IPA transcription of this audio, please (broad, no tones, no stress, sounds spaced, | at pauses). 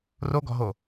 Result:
r o ɡ ɔ̤ ɦ o